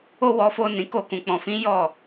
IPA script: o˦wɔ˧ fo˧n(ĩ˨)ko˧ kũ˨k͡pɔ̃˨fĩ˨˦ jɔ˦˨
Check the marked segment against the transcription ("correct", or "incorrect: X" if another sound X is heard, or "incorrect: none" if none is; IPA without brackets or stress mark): correct